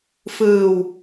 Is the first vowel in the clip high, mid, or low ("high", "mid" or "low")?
high